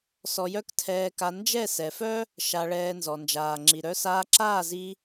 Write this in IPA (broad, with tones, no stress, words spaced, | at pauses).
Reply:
sɔ˧jœ˦ktʰɛː˧ka˧ nd͡ʒɛ˦˨sɛ˨fœ˦ | ʃa˧ɭɛː˧ nzɔ˨nd͡ʒaː˨ŋ͡ǁi˨ ɾœ˧saː˧ǁaː˦˨zi˧